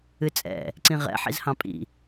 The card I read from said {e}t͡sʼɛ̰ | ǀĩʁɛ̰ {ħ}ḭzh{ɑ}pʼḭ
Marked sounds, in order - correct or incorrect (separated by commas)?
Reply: incorrect, correct, incorrect